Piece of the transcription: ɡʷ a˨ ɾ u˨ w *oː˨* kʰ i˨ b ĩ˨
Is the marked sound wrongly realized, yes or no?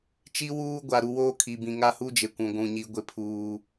yes